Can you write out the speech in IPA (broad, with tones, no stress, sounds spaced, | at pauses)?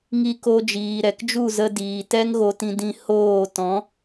ŋ i˧ k o˧ d͡ʒ iː˨ ɾ ɛ˨ k d͡ʒ u˦˨ z ə˧ d iː˨ t ɛ˦ ŋ ɣ o˧ t ĩ˧ d ĩ˧ h oː˦˨ t ɔ̃˨˦